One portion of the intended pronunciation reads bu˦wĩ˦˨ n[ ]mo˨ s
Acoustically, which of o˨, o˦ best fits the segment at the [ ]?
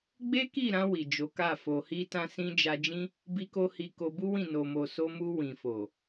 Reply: o˨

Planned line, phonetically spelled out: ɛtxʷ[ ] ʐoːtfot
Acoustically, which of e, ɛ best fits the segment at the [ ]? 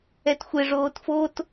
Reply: e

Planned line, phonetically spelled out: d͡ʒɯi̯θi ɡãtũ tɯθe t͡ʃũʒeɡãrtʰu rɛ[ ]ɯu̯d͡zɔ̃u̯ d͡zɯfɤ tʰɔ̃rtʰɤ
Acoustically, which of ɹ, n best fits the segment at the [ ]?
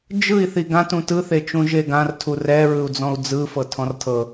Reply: ɹ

